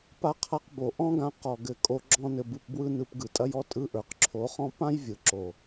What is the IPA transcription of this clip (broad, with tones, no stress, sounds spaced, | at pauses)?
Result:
p a˧ qʰ a˧ q b o˨ ʔ ɔ̃˦ ɡ ã˧ q ɔ˨ ɡ ɘ˦˨ kʼ o˦ ɡ͡ǁ ɔ̃˦ n ɘ˧ b ɯ˧ p b w ɯ˦ n ɯ˧ p ɡ ɯ˨ tʼ ɐ˧ j ɔ˦ tʼ ɯ˧ ʔ ə˞˨ q ǁʰ o˨˦ χ ɔ̃˦ p ã˦ j vʲ ɯ˨ ǁ o˨